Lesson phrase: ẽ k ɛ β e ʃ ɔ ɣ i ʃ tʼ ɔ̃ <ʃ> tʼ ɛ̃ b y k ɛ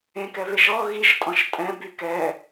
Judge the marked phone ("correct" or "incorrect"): correct